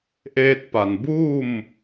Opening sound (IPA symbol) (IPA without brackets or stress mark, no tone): ʔ